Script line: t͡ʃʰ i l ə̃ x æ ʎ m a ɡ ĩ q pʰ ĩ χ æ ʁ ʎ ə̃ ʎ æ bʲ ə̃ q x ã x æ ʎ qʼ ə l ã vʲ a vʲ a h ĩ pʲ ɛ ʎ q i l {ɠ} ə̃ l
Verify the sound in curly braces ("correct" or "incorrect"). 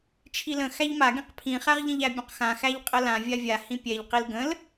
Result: incorrect